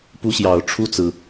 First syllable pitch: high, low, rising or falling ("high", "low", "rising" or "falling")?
high